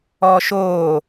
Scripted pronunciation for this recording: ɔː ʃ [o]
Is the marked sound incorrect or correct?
incorrect